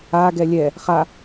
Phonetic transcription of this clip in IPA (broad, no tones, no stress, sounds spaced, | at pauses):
a ɡ ɛ lʲ ɛ | χ a